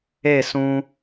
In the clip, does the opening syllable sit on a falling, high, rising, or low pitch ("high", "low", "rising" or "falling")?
falling